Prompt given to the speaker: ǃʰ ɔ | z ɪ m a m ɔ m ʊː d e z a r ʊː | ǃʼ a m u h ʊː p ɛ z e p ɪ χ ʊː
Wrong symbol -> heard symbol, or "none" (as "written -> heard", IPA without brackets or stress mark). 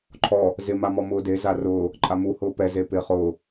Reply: none